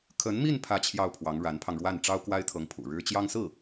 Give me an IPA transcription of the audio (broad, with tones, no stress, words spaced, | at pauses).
kʰə˧˥nmi˥˧n pʰä˥˧t͡ɕʰjɑ˥˩ʊ̯pʰwɑ˧˥ŋ ɻa˧˥npʰɑ˧ŋɻwa˥˩n ʈ͡ʂɑ˥ʊ̯kwa˥ɪ̯t̪ʰɤ˧˥ŋpʰṵ˨˩ ɻɻ̩˥ t͡ɕjɑ˥ŋsɹ̩˥˩